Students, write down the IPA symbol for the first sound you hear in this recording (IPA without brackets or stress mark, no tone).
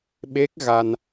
ɓ